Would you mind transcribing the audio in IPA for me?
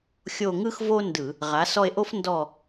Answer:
xʲ o˦˨ ŋ ɯ˥ x v o˥ n d ɯ˧˩˧ | ʁ a˩˥ s ɔ˦˨ e̯ ʔ o˥ f n d ɔ˦˨

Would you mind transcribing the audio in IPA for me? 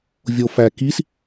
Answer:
vʲ o f æ k i s

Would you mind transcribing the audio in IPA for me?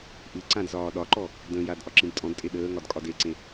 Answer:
ʔ ɨ ǀ ã d z ɒː ɗ ɒ ǃ ɔ | d ə̃ j a d ʔ ɒ ǁ ĩ d tʼ ɔ̃ d tʼ e ɗ əː ŋ ɒ d kʼ ɒ d e ǀ ẽ

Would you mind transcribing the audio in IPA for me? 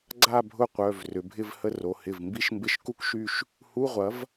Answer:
ɡ͡ǀ a˥˧ bʱ ʊ˥˧ qʷ œ˩˧˩ v r ʏ˩˧ bʱ ɪ˥˧ v h ə˥˧ r o˩˧ h ɪ˩˧˩ v m b i˥˧ ʃ m b ɪ˧˥˧ ʃ k u˥˧ k ʃ y˥˧ ʃ | h u˧˥˧ ʁʷ ɐ˩˥ v

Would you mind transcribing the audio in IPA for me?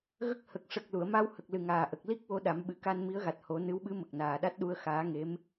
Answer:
ɣ ə˦˥ k̚ h ə˨˩ k̚ ʂ ə˨˩ k̚ l u˨˩˨ ə̯ m a˧ w h ə˨˩ k̚ l ɨ˨˩ ŋ aː˨˩ ʔ ə˨˩ k̚ l i˦˥ k̚ w o˧˥ ɗ a˨˩˦ m ɓ ɨ˨˩˦ k a˧ n m i˧˥ ə̯ ɣ a˨˩ t̚ h o˨˩˦ n ɨ˧˥ w ɓ ɨ˧˥ m ə˨˩ k̚ n aː˨˩ ɗ a˦˥ t̚ ɗ u˧ ə̯ x aː˧˥ ŋ e˧˥ m

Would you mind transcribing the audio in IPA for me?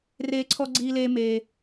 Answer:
r eː˧ ǀʰ ɔ˧ ɡ͡ǀ iː˧ l eː˧ m eː˧

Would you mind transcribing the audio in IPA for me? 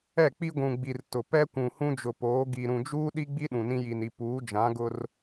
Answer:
ɛ˦˨ k͡p i˦ ɡʷ ũ˨ ɡ͡b i˨ r t ʊ˨ p ɛ˦ kʷ ũ˨ h ũ˦ d͡ʒ ʊ˨ p oː˨˦ ɡ i˨ ɾ ũ˨ d͡ʒ uː˦ ɗ i˦ ɡ͡b i˦ ɗ ũ˨ n ĩ˦ j i˨ n i˨ p uː˨˦ d͡ʒ ã˨˦ ɡ ʊ˦ r

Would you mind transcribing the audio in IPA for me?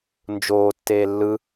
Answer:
n d͡ʒ oː tː eː lː ɯ

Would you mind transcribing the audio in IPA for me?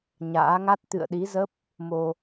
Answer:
ɲ a̰ː˧˥ ŋ a˦˥ t̚ t̪ ɨ̰˧˨ ə̯ ɗ i˨˦ z ə˦˥ p̚ | m o˧

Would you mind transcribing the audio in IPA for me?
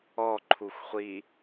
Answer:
ɔ ǃʰ u xʷ χʷ i

